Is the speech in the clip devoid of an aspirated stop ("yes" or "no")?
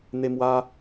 yes